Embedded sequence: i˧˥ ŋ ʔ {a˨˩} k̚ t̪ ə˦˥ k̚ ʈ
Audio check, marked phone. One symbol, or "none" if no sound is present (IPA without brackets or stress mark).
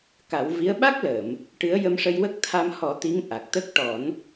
a˨˩